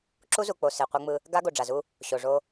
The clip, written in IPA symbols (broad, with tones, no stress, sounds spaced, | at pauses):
ǁ u˦ z u˨ k͡p o˨ s e˨ qʷ ʌ˦ ŋ͡m ɯ˦ | ɡ a˦ ɡ o˨ ɖ͡ʐ a˨ z u˦ | ɕ o˨ ʐ o˦